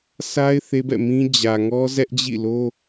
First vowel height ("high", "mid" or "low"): low